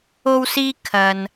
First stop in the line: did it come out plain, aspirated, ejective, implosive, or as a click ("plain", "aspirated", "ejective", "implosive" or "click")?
aspirated